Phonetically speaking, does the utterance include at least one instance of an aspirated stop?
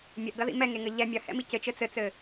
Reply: no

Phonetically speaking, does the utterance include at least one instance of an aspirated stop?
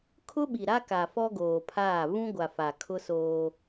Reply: yes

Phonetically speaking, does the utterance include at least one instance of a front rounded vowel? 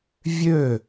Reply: yes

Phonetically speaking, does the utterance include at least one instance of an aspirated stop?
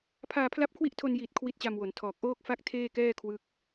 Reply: yes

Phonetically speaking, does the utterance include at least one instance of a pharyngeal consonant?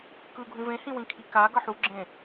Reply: yes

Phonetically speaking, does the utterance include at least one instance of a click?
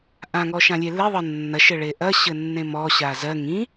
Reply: no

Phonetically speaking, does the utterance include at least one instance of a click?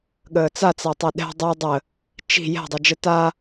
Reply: no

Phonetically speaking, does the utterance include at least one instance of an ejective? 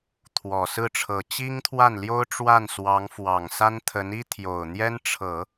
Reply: no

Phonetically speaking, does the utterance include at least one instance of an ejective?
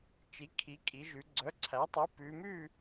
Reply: yes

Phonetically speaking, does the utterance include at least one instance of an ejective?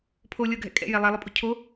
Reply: yes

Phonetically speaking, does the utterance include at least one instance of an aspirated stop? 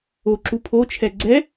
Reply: yes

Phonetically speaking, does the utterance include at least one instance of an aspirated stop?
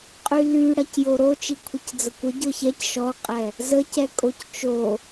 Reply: yes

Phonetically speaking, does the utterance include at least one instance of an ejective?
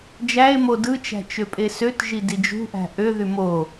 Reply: yes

